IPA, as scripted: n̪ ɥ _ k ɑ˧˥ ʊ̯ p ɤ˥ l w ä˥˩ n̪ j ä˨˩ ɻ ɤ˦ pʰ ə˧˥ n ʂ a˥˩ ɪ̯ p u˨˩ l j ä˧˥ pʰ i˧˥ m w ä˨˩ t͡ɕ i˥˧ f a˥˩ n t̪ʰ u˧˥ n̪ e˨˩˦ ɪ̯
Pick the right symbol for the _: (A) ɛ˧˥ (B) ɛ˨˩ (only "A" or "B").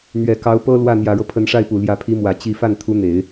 B